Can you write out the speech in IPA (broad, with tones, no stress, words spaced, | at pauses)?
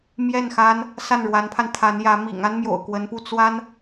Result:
mjɛ˥˩n xa˥n | sa˥˩nɻwa˧˥npʰa˧n t̪ʰa˧˥njä˧˥ mḭ˨˩ŋ a˥nmjo̰˨˩ʊ̯ kwə˧˥npu˥˩ t͡swa˥n